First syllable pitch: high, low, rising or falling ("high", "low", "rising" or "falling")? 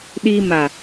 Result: high